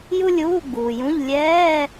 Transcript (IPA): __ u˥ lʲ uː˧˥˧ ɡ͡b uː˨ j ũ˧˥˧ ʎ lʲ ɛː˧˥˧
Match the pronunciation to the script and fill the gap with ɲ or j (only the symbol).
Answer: j